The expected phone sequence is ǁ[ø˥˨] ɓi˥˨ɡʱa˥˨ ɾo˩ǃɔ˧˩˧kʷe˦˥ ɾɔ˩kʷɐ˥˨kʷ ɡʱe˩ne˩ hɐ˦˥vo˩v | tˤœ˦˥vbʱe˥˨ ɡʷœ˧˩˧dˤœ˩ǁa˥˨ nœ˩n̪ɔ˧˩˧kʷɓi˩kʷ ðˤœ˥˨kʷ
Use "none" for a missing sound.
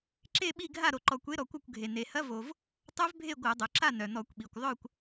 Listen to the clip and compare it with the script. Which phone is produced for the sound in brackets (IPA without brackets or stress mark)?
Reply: e˥˨